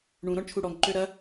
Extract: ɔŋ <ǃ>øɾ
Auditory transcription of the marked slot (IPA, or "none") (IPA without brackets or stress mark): ǃ